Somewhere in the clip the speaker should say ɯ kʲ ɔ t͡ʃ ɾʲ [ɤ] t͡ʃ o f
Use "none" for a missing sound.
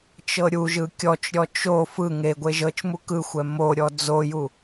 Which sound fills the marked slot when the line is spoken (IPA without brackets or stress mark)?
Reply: ɔ